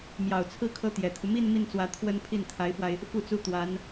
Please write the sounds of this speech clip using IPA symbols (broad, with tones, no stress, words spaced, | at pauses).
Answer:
mjɑ˨˩ʊ̯t͡sʰɹ̩˥˩ kʰɤ˥t̪jɛ˨˩t̪ʰu˦ mi˥˧n mi˥˩nt͡swä˧˥ t̪ʰwə˥npʰi˥˩n t̪ʰa˧˥ɪ̯fwa˧ɪ̯ | fu˥˧t͡su˥˩t̪wa˧˥n